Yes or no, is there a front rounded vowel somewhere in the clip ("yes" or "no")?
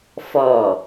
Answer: no